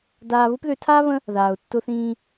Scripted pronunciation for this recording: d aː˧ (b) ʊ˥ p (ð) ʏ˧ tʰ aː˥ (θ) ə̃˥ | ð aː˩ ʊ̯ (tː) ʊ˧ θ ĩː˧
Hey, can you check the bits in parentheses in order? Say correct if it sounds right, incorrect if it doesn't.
incorrect: β, correct, incorrect: β, correct

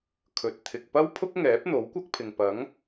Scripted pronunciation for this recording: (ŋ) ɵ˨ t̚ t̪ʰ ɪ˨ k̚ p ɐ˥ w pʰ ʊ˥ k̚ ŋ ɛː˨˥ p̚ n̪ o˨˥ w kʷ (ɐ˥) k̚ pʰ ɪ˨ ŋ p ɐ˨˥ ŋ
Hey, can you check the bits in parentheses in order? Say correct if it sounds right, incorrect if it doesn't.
incorrect: kʰ, correct

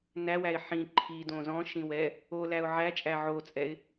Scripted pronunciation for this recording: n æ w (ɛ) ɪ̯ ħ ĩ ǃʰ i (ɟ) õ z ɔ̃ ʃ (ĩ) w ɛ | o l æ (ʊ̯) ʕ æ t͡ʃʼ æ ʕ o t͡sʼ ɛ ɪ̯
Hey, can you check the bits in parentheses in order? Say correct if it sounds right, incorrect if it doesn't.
incorrect: æ, incorrect: d, correct, correct

